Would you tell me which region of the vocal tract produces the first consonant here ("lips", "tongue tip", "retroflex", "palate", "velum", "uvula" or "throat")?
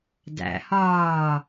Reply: tongue tip